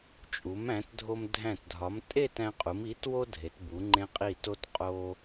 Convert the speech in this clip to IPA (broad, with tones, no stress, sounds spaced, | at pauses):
t͡ʃʼ u˩˧ m æ̃˩˧ t dʱ o˧ m dʱ æ̃˧˩ t dʱ ɒ˩˧ m tʼ e˥˧ t æ̃˧ qʼ u˩˧ m i˩˧ t w o˥ dʱ e˩˧ t b u˩˧ ŋ͡ǃ ẽ˧ qʼ i˧˩ t o˧ t qʼ o˧